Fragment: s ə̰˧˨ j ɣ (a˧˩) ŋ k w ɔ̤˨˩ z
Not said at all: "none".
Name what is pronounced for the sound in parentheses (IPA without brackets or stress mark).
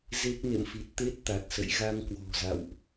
a˧